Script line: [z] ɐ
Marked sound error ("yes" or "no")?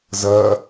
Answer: no